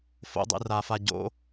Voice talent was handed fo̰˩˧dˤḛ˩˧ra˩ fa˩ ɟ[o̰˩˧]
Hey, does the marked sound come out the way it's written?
yes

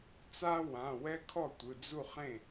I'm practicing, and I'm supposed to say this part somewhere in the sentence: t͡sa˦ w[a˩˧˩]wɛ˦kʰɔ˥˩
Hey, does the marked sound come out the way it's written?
no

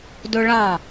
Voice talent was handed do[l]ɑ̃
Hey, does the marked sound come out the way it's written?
no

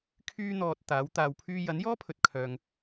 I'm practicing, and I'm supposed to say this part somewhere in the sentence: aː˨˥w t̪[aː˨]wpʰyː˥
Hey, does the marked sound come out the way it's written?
no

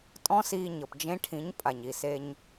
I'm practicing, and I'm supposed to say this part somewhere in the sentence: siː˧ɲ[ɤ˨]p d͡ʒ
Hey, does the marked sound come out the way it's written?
yes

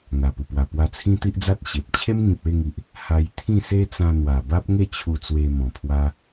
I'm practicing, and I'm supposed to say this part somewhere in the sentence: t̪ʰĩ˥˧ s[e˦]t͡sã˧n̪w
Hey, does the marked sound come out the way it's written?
yes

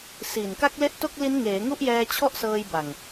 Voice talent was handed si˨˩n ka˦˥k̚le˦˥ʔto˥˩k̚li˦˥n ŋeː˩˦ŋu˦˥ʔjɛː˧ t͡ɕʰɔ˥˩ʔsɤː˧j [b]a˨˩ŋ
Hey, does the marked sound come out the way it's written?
yes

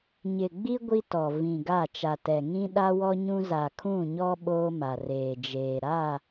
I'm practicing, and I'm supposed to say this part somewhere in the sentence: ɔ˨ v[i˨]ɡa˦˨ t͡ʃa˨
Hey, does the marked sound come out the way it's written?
no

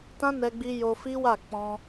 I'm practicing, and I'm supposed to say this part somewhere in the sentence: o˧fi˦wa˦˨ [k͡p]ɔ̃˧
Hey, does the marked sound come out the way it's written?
yes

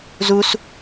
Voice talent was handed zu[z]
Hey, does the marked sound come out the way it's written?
no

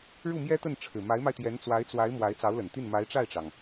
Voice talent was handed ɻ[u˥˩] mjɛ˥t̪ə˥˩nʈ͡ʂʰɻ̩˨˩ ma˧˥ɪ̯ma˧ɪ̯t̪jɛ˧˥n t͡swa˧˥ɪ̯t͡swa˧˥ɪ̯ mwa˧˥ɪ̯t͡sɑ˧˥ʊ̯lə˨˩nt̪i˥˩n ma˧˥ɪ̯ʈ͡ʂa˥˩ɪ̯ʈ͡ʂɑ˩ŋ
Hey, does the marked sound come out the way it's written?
yes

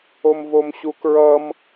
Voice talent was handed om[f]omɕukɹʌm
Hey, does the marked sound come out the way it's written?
no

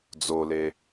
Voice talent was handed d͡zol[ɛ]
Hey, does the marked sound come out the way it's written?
no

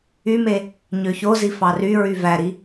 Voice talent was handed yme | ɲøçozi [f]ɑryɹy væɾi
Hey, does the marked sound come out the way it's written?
yes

